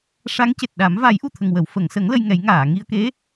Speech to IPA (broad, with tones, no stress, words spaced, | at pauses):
ʂa˧˥ŋce˨˩t̚ɗa˨˩˦m va˨˩˦jʔu˨˩t̪ʰə˨˩ŋ wə˨˩˨wfə˨˩˨ŋsə˨˩˦ŋ lə˧j ŋɛ˨˩˦j ŋaː˨˩˨ŋi˧ə̯ke˧˥